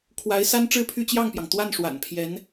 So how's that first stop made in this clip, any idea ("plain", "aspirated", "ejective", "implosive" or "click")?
aspirated